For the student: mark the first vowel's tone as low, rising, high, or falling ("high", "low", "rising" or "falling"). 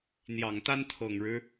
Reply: low